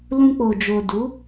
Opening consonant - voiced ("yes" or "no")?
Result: yes